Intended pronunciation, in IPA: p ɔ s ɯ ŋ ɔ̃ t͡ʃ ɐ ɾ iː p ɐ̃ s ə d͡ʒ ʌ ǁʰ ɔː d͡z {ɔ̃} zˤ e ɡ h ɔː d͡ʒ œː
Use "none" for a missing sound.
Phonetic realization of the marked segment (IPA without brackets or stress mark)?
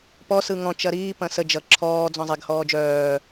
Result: ɔ̃